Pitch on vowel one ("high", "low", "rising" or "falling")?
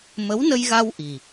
rising